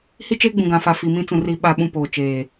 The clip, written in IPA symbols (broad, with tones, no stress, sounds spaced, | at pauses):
h i˦ t͡ʃ eː˦ ɡ͡b ũ˨ ɡ ã˨ f a˨ f i˨ m ĩ˦ t͡s ũ˨ r i˦ ɓ a˦ ɓ ũ˦ p oː˨ t͡ʃ eː˨